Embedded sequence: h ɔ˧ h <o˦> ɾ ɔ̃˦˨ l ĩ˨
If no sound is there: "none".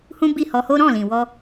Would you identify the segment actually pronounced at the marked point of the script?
o˦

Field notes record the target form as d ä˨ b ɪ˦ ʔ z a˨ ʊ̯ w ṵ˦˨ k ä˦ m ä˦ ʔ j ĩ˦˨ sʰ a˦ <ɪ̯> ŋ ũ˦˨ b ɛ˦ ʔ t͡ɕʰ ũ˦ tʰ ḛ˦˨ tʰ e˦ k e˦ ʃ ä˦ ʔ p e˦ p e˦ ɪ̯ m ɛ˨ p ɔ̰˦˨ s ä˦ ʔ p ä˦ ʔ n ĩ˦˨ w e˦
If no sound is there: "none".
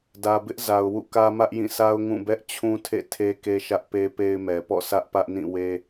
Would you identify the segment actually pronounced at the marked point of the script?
ʊ̯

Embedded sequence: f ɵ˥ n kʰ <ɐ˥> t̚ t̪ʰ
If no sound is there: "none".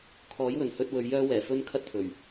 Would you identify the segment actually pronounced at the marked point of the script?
ɐ˥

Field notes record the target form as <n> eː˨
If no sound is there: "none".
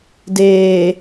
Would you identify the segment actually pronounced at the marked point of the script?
d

